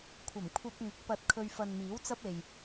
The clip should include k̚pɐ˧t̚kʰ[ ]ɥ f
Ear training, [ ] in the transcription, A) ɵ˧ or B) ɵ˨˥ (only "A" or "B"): A